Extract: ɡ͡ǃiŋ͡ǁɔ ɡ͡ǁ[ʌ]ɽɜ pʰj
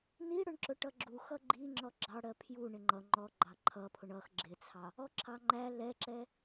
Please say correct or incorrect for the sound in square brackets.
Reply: incorrect